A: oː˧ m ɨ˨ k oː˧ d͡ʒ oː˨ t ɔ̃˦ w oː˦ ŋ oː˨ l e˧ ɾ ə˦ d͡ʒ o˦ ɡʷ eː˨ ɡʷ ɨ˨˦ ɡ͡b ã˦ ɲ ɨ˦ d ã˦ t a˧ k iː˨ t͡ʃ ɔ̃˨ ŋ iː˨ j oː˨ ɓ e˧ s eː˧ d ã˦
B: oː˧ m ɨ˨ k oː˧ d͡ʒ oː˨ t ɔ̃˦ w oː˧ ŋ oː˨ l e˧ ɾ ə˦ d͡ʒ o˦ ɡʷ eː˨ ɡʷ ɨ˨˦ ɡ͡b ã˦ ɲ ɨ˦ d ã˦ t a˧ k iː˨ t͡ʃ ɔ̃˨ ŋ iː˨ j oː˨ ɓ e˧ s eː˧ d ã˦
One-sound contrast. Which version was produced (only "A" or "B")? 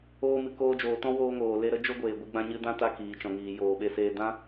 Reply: B